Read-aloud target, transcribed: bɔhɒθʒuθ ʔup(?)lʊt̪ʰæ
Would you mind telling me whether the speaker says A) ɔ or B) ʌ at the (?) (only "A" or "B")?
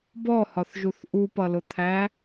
B